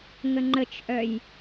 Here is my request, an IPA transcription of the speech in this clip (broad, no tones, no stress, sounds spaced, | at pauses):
ŋ ə ŋ͡ǃ ə t͡ʃ ʔ œ j